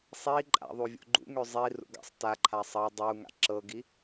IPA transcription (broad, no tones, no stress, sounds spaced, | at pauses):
sˤ i ǃʼ a̰ ðˤ u vʲ ṵ ɡ͡ǃ ṵ ŋ ø zˤ i r ṵ ɡ a̰ sˤ t a ǃʰ a sˤ ʌ dˤ u ŋ a̰ ǁ ɤ ɡ i